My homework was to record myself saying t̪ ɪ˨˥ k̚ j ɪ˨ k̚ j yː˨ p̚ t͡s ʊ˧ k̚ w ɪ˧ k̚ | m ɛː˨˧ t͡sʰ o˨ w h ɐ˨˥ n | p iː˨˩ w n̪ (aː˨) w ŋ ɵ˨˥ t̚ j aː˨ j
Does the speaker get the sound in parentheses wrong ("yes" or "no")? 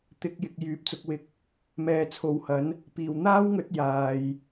yes